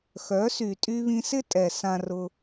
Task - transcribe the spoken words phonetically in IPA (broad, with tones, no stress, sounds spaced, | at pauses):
x œ˨˦ s y˨ tʼ y˧ β ĩ˧ s ɪ˦ tʼ ɛ˨ s ã˧ r ʊ˧